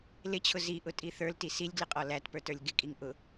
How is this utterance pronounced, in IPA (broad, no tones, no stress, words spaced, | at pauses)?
lɪt͡ɕʰʊ ziʔʊtʼi θə˞lti silʲɡlɪqʼɔ lætpə˞tə˞lʲ ɡɪkʼiŋ ʔʊ